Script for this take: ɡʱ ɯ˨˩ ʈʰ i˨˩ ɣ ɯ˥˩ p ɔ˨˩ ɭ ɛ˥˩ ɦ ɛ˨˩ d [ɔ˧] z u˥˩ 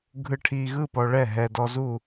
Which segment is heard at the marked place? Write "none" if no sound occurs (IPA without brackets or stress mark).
ɔ˧